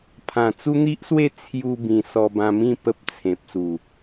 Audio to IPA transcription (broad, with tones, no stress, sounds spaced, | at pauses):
pʰ ã˨˩ t͡s u˦ n̪ i˦ ʔ s w e˥˧ t͡sʰ j u˧ b ĩ˨˩ s ɔ˧ b ã˧ m ĩ˥˧ p ə˦ p̚ t͡sʰ ẽ˨ p̚ s u˨˩